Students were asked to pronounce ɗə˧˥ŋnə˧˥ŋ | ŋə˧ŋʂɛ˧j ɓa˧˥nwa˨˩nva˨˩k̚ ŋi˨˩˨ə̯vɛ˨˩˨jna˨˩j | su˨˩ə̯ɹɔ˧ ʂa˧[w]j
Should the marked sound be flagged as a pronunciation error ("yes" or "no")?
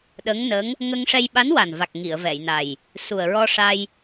yes